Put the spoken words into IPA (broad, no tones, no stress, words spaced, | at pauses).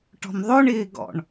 ʈɔ̤mðˤoɳ ɪːɡɔ̰ɳ